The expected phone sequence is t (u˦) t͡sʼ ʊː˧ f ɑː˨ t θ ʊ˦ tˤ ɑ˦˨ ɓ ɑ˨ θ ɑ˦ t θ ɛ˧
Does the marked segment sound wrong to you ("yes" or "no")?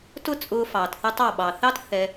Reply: yes